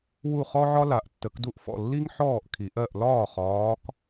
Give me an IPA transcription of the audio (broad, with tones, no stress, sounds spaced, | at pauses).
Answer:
w u˥˧ χ ɔ˥ ʕ ɒ˥ l a˨˩˦ ʔ tː ə˨˩˦ k d u˥˩ ʔ f ɔ̰˥˩ lː i˥ ŋ ħ ɔː˥˩ ʔ kʰ i˨˩˦ ʔ ɜ˥˩ ʔ l ɒː˥˩ χ ɒː˧˥ k